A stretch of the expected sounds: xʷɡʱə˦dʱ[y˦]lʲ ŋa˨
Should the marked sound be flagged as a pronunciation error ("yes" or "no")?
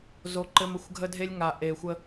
yes